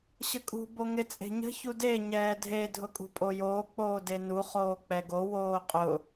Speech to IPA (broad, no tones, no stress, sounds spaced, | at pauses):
ɕ ə kʼ ṳ b o ŋ ɪ t͡sʼ e̤ ɲ ə̤ ç u d e ɲ ɛː dʱ e dʱ ʊ kʼ ṳ pʼ o j oː k͡p oː d e n u χ oː k͡p ɛ ɡ o w oː qʼ ʊ